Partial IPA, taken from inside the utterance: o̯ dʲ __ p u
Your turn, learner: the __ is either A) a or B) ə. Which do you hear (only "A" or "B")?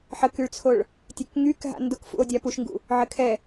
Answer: A